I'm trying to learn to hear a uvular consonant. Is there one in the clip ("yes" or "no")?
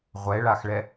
yes